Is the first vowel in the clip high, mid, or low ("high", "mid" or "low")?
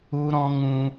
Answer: high